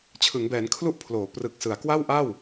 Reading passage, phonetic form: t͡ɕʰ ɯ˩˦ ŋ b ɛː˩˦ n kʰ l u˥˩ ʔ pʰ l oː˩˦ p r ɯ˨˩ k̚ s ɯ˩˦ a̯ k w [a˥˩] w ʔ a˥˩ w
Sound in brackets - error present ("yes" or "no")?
no